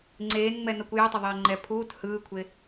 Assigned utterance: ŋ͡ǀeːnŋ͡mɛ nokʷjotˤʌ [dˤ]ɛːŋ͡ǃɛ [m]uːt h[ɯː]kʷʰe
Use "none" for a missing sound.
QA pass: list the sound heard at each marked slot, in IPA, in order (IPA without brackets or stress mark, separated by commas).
ðˤ, pʰ, ɯː